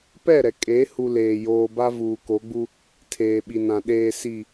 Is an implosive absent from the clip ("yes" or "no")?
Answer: no